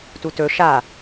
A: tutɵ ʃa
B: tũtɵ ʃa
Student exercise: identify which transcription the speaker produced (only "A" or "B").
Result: A